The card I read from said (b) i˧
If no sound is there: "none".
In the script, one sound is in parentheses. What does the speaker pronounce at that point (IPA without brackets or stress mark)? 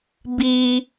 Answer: b